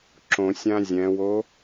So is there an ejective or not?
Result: no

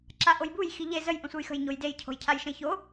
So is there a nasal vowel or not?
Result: yes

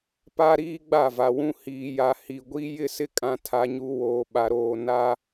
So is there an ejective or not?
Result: yes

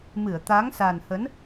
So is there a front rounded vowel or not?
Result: no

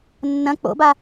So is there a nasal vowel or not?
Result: yes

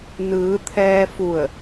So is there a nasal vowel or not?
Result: no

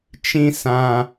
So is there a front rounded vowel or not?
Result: no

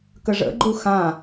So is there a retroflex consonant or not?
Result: yes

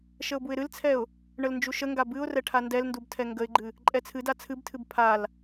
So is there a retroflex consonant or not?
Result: yes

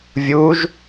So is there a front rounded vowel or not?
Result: no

